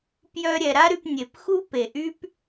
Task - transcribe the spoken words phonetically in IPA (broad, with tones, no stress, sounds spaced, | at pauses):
p j œ˧ ɾʲ ɛ˨ ɾ a˦ ɾ y˧ p nʲ e˨ p x u˦ p e˨ ʔ y˦ p